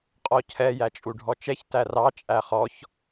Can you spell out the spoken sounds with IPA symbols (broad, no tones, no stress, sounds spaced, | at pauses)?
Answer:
qʼ ɔ cʰ ɛ j æ t͡ʃʼ u ɖʱ ɔ t͡ʃ ɛ ç t æ r ɑ t͡ʃʼ æ χ ɔ ç